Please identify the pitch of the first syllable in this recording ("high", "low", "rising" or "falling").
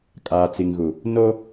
low